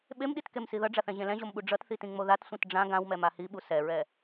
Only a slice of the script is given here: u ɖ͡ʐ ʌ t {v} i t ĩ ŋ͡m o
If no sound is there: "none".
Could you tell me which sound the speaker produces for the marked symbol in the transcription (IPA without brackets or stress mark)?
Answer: θ